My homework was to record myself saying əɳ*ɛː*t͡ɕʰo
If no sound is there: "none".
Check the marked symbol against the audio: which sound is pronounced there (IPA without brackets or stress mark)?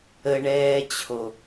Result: ɛː